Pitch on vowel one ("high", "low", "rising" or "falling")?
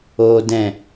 high